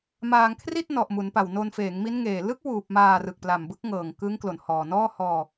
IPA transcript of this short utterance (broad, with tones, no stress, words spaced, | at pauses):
maː˧ŋkʰri˥˩t̚ nɔ˨˩ʔmu˩˦npa˨˩w no˧nfeː˩˦ŋmi˦˥nŋeː˨˩ lɯ˦˥k̚wuː˨˩p̚maː˨˩ rɯ˨˩k̚ pla˨˩mbɯ˦˥k̚ŋɤː˨˩ŋkɯ˦˥ŋ klo˨˩nhɔː˨˩nɔː˥˩ hɔː˧